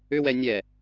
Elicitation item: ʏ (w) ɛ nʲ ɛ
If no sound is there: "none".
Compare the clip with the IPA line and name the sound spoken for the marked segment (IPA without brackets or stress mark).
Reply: w